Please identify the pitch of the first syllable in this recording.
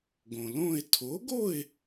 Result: low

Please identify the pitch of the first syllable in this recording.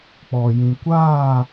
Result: low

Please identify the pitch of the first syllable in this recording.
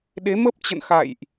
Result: rising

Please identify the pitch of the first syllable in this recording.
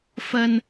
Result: high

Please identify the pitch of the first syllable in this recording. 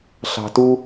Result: low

